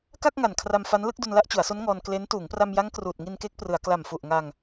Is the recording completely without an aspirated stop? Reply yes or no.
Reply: no